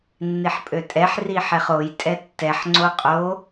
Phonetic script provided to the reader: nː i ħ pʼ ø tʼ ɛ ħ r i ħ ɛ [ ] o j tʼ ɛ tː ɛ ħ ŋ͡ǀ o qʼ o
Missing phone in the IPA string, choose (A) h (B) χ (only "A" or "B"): B